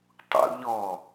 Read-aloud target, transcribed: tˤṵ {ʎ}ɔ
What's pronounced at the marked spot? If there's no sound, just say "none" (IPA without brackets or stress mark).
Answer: ʎ